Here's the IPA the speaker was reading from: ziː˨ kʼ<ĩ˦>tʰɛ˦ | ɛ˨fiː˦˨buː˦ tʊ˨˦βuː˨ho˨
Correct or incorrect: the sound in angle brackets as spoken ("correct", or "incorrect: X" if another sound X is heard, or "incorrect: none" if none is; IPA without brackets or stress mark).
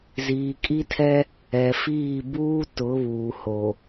incorrect: i˦